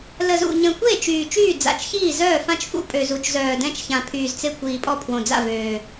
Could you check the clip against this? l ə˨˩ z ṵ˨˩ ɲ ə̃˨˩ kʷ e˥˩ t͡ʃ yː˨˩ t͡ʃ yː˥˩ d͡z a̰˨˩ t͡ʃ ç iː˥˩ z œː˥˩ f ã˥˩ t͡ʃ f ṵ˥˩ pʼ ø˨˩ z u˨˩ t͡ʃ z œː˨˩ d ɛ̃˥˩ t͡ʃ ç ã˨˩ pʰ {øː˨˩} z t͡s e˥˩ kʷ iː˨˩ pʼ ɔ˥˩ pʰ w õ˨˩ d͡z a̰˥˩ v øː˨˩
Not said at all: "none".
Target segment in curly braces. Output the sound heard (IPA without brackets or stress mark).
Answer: yː˨˩